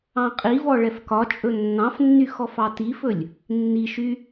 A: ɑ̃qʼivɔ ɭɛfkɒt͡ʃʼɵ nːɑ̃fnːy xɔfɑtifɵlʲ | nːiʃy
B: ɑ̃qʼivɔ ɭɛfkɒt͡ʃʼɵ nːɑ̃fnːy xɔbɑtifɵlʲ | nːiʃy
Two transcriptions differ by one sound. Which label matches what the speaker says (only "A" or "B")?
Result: A